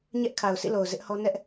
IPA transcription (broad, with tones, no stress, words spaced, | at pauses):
ɲɛ˦ʔkʰa˨ʊ̯sḭ˦˨lo˨ʊ̯ zɪ˦ʔhɔ˦ nɛ˦ʔ